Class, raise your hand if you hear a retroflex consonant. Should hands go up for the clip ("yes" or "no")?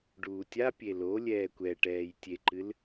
yes